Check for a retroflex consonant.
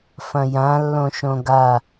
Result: absent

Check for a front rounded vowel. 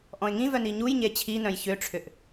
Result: present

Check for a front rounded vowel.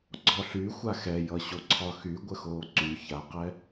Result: present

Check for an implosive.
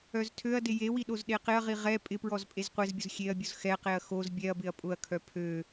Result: present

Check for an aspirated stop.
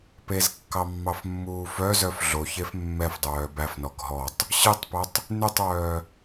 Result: absent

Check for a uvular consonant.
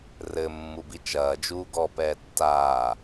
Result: absent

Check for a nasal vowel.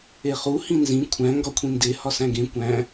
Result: present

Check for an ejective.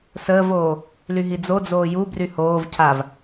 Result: absent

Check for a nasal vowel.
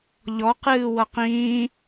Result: present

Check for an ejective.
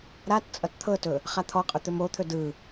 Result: present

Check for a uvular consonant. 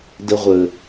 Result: present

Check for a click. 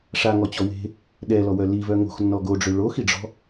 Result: absent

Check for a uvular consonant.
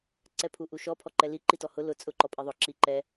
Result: absent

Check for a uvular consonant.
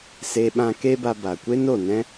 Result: absent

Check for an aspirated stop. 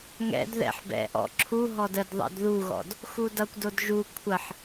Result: present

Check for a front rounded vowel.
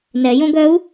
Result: present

